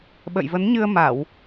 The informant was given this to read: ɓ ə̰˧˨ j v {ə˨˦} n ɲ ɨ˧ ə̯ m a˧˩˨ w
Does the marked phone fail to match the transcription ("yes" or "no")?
no